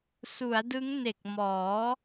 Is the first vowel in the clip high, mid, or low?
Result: high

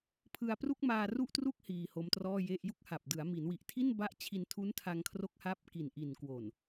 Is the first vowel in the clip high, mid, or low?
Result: high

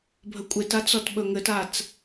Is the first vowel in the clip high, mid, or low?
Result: mid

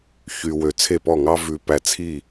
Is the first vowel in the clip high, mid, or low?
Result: high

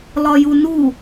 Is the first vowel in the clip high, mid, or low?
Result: low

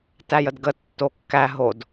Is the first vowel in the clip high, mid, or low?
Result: low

